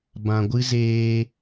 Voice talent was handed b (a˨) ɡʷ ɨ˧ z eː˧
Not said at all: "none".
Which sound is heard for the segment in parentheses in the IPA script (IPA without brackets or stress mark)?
ã˨